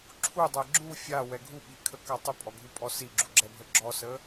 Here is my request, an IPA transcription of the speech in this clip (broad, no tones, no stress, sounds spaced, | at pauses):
ǁʰ u dˤ ɛ ɡ͡ǁ u fʲ a w ɛ ɡʱ u ɓ i kʰ ə k a tˤ ʏ pʼ ɔ ɡʱ u pʼ ɔ s i ɡ͡ǁ u ɡ͡ǁ ɛ bʱ ə ɡ͡ǁ ɔ s ə